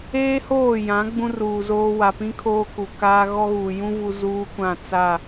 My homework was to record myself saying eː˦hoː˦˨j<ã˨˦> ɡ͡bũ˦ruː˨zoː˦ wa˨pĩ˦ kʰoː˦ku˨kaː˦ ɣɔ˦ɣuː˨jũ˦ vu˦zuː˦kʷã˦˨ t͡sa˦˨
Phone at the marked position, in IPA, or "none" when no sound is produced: ã˨˦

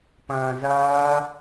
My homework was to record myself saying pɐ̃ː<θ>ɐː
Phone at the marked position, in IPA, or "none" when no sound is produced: z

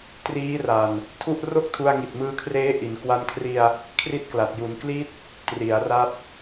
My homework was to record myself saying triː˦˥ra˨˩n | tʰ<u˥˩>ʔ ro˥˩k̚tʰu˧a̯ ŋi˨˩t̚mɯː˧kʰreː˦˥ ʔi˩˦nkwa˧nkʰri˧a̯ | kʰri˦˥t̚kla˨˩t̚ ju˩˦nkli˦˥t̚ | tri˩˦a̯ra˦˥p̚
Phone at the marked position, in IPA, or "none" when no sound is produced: u˥˩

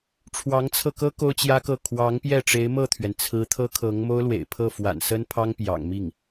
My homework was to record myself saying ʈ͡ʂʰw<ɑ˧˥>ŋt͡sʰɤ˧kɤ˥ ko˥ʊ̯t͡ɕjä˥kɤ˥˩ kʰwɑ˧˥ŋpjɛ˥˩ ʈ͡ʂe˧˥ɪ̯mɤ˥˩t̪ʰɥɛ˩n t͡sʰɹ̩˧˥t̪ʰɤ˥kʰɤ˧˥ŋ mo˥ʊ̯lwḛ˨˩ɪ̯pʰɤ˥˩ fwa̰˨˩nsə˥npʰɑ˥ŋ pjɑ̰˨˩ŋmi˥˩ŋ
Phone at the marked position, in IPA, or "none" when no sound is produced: ɑ˧˥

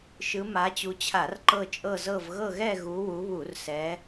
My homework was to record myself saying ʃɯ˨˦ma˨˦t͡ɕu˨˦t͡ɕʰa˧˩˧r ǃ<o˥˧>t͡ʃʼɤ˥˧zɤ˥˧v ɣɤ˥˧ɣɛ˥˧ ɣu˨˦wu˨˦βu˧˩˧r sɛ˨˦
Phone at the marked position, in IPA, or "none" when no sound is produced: ɤ˥˧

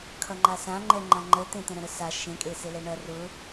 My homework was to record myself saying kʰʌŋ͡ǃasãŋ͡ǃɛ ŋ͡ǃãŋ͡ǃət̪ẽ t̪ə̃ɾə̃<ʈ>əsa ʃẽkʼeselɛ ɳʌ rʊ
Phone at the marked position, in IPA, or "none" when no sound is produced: ɾ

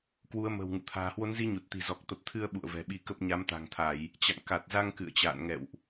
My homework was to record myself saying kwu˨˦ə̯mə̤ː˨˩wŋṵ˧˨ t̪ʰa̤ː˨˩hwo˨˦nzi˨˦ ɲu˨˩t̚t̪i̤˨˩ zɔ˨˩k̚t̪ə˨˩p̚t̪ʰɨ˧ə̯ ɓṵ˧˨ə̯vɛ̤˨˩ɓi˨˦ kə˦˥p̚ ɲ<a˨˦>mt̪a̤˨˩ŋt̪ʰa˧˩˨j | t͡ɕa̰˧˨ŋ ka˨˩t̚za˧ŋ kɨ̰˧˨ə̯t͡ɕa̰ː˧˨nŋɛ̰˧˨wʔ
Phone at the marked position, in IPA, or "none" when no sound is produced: a˨˦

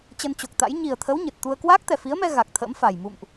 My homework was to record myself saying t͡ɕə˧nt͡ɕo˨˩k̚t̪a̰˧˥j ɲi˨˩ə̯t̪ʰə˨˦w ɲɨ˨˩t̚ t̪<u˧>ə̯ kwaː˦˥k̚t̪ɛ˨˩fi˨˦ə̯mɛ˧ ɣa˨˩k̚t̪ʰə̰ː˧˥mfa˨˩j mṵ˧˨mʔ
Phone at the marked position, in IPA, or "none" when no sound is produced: u˧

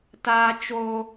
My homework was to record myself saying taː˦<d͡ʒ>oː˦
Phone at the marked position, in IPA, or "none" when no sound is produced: t͡ʃ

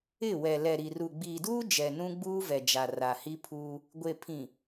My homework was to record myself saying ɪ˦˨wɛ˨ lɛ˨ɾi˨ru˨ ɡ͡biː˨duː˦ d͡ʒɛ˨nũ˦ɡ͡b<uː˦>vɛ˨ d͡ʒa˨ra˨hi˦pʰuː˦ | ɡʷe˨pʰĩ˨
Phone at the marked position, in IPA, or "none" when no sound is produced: uː˦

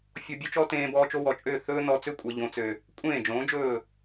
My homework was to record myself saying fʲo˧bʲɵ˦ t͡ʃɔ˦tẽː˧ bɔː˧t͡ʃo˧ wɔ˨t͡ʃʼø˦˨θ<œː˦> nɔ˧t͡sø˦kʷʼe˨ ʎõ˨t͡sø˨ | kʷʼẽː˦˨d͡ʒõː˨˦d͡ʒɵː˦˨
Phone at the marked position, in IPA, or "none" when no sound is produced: ɵː˦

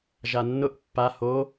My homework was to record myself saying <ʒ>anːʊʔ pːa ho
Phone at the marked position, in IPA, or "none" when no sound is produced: ʒ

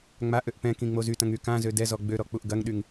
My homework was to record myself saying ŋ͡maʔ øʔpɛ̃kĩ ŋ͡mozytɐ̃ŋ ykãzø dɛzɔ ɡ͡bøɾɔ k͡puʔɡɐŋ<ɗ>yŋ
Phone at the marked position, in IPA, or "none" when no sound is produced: ɗ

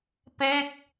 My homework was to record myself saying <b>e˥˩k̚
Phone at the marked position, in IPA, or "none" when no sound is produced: p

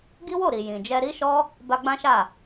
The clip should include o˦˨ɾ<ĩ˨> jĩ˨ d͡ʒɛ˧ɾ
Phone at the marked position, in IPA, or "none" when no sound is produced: i˨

